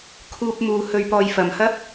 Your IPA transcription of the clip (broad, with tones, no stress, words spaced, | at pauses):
kʰuː˧p̚ muː˨˧ hɵ˨˧ɥpɔː˨jfɐ˨˩mhɐ˥p̚